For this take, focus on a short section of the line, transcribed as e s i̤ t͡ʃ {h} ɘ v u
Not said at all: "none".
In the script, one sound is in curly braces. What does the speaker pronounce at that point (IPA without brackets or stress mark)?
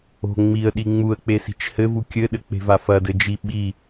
h